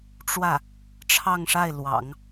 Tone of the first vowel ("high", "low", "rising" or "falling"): falling